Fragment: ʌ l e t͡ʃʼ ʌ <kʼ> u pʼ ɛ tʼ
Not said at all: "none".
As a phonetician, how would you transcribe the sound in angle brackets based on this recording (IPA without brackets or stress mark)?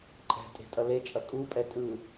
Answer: kʼ